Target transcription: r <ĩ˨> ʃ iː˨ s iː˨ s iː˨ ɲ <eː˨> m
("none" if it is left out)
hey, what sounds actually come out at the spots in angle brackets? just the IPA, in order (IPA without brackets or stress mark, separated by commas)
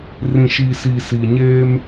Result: ĩ˨, eː˦